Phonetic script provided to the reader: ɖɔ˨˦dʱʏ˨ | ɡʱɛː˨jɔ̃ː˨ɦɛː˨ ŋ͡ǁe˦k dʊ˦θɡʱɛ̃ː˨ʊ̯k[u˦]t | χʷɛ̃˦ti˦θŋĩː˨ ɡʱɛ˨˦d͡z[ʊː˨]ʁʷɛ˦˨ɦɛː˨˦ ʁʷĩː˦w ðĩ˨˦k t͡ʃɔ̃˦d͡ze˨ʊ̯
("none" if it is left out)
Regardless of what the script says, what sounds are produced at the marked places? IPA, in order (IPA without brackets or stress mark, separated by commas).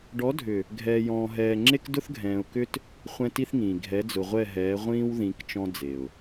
ʏ˦, ʊ˨